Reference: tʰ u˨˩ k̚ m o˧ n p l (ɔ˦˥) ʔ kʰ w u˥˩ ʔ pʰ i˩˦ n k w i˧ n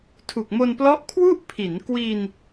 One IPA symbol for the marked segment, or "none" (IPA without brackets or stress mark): ɔ˦˥